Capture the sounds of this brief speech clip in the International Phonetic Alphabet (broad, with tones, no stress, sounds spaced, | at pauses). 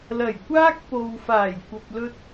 l ɐ˨˩ j kʷ aː˥ k̚ p o˨ w f aː˨˩ j kʷ ɐ˨ p̚ l ɵ˧ t̚